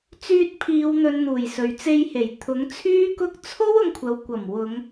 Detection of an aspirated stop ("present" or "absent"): present